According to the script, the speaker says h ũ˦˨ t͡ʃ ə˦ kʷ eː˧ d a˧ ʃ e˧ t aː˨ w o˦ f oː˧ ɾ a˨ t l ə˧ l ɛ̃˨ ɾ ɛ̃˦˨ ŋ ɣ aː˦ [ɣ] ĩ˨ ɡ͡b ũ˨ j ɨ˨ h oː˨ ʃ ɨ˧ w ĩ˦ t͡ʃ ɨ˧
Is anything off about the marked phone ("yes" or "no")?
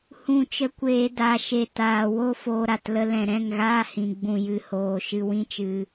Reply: yes